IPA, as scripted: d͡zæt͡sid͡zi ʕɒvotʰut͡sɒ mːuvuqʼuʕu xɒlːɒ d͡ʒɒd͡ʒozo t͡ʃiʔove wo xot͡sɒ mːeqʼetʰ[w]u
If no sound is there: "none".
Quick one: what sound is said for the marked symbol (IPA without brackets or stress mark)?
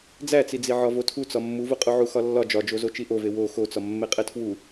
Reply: w